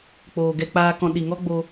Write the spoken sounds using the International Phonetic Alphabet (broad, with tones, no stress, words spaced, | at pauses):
k͡poː˨ ɡɛ˧k͡paː˧kɔ̃˧ ɗi˨ŋɔ˦ɡ͡bo˧